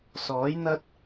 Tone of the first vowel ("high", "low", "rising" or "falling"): rising